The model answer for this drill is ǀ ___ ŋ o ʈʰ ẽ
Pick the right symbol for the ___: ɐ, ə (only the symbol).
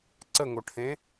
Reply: ə